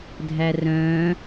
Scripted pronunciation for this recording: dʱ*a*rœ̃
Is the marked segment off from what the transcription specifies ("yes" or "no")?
yes